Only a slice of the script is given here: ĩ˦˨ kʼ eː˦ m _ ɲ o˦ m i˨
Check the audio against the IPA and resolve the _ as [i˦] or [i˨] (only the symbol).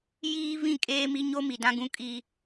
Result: i˦